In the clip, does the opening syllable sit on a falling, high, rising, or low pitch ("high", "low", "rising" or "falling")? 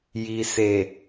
low